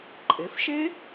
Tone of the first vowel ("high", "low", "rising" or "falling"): rising